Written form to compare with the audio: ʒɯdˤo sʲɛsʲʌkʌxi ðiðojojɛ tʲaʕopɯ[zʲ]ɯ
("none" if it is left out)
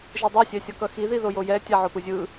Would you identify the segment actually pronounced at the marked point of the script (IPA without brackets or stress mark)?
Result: zʲ